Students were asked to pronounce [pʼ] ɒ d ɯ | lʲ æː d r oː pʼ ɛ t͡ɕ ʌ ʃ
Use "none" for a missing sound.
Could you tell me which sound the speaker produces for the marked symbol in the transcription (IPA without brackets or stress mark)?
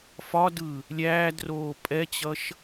f